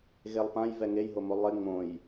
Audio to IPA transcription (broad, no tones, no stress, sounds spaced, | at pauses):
ɣ e lˠ p ã j v ɛ ŋ e j ɦ o m o lˠ ɪ ŋ͡m õ j